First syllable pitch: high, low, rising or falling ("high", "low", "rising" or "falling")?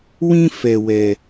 high